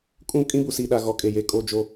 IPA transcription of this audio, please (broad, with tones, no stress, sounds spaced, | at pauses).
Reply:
kʼ ũ˦ kʼ ĩ˦ b u˨ s iː˨ ɗ a˨ ɣ ɔ˨ kʼ e˨ j e˨ kʼ o˦˨ d͡ʒ o˦